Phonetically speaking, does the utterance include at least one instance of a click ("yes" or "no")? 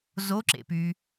yes